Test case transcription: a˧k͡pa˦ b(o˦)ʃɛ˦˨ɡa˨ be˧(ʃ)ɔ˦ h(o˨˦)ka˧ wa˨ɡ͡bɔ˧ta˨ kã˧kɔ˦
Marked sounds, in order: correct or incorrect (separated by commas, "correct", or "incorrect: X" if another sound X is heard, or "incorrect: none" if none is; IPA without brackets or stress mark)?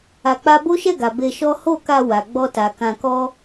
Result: correct, correct, incorrect: o˦˨